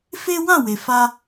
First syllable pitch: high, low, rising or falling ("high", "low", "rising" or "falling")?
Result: high